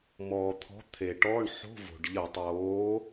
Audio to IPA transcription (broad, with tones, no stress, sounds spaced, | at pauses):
m ɔː˩ t̪ʰ ɔ̤˨˥ t̪ʰ e˩ ʈ ɔ˧˥˧ ɳ ħ o̤˧˥˧ v o̤˩ ɖ ʎ ə˧˩˧ tˤ oː˨˥